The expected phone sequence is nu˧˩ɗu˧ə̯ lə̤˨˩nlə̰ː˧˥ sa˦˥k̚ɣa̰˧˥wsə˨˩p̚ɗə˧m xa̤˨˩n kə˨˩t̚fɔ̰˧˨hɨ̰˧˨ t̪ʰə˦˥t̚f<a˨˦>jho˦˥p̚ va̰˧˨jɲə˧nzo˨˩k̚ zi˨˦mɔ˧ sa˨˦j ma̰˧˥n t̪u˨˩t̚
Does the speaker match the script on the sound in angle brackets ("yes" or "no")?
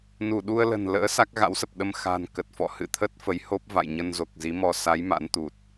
no